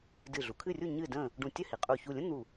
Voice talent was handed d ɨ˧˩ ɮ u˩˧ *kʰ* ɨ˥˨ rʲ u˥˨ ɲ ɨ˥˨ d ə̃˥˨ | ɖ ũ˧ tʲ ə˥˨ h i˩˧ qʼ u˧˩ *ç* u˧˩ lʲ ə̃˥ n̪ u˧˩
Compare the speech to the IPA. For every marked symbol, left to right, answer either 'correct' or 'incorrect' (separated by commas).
correct, correct